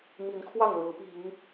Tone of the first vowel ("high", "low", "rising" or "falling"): rising